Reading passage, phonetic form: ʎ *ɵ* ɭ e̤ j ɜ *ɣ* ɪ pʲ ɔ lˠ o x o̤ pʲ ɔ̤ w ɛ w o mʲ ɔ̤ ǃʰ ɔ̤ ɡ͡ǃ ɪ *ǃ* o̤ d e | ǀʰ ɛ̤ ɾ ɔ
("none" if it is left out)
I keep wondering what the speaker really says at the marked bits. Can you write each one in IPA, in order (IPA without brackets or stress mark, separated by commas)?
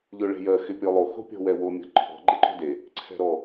ɵ, x, ǃ